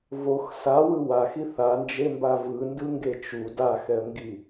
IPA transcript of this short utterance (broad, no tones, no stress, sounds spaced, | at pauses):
v o x s a w ɯ w a x i θ a n d͡ʒ e m b a v ɯ n d ɯ ŋ ɡ e t͡ʃ u d a x ɛ ə̯ ŋ ɡ i